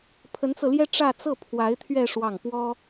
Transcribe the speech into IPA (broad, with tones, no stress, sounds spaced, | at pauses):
pʰ ə˧˥ n t͡s ɤ˧ l j ɛ˥ ʈ͡ʂ ä˥˧ t͡s ɤ˥˩ pʰ w a˧˥ ɪ̯ t̪ʰ ɥ ɛ˥˧ ʂ w ɑ˥˩ ŋ p w ɔ˥